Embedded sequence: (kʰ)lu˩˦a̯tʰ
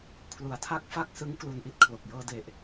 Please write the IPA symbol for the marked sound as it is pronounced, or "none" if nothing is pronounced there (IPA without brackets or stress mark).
kʰ